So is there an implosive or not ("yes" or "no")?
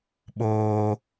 yes